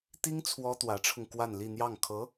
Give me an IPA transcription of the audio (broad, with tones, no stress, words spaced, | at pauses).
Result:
t̪i˥ŋ t͡sʰwɔ˥t̪wä˧˥ʈ͡ʂʰʊ˧ŋ kwa˥˧nli˥˧n̪jɑ˥˩ŋ kʰɤ˧˥